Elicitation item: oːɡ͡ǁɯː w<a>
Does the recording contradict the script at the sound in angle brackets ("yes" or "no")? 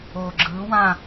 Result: yes